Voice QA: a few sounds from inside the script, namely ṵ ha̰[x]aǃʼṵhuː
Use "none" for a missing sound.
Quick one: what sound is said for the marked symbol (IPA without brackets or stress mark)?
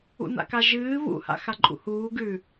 x